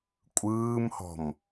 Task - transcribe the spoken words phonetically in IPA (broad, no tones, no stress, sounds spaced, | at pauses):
kʷʼ ɯː m h ɔ̤ m